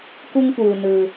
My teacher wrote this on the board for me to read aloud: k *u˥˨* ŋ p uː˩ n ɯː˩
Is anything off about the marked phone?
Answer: yes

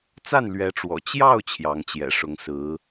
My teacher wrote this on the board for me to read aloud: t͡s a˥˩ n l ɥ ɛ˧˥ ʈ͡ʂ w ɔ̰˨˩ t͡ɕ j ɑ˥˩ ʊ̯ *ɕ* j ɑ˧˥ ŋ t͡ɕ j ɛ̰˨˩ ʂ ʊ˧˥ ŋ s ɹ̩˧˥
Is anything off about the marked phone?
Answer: yes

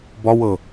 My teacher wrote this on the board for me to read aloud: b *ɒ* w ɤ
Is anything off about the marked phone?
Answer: no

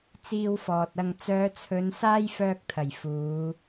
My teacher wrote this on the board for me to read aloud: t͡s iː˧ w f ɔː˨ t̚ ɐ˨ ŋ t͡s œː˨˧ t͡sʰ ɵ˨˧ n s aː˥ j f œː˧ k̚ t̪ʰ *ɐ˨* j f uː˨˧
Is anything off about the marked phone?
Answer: yes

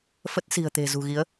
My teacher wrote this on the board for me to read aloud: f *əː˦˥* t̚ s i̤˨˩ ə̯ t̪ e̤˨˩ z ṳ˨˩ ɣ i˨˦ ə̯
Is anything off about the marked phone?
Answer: yes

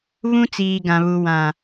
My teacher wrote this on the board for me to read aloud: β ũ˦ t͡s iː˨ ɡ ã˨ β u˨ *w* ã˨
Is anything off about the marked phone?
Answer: no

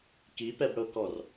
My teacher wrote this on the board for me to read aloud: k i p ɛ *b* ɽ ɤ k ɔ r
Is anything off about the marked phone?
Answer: no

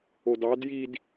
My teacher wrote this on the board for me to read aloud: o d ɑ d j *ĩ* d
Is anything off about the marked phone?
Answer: yes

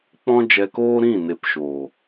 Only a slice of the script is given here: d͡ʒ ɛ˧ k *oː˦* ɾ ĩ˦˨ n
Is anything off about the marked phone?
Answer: no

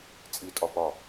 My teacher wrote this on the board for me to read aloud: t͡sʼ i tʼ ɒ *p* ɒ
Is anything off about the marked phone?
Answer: no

